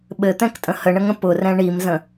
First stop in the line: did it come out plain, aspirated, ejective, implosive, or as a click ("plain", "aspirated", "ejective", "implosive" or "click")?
implosive